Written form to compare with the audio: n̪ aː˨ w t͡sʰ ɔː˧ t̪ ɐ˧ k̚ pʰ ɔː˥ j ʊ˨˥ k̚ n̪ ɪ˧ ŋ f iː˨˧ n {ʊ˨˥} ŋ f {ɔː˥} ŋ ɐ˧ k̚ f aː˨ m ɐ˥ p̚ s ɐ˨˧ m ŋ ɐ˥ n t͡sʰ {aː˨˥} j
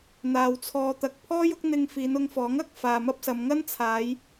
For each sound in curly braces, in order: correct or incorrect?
incorrect: ʊ˧, incorrect: ɔː˨˥, incorrect: aː˨˧

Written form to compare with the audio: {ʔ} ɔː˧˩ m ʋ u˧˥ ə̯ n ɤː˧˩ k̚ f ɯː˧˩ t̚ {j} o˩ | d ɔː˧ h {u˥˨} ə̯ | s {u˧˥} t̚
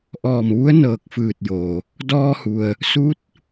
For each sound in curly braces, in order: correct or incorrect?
correct, correct, incorrect: u˩, correct

